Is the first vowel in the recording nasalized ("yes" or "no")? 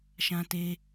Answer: yes